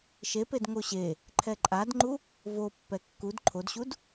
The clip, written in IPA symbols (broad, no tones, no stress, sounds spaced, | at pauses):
ʃ e p e d ŋ o ɕ e | ǃʰ ɛ ǃʼ a d ŋ͡ǃ u | v o pː ɛ kː u d ǃʰ o d ɕ u d